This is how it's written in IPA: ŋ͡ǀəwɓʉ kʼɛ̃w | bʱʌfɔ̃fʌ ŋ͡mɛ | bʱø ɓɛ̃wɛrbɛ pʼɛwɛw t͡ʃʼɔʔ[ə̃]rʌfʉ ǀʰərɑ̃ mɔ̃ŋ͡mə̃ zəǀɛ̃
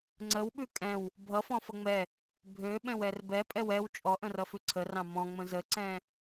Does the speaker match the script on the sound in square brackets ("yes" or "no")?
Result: yes